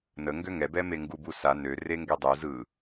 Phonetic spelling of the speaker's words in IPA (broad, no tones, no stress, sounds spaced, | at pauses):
n ə ŋ ɡ ø ŋ ɛ b ɛ m e ŋ ɡ u b u s a n ø r e ŋ ɡ e dˤ u z ɯ